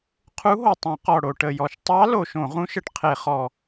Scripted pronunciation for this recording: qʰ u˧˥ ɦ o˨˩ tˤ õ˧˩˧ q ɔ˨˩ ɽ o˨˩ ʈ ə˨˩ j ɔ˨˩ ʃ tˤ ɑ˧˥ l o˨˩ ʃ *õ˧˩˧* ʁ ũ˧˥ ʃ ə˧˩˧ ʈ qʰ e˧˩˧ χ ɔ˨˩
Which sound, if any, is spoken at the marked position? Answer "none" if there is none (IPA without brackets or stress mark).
õ˧˩˧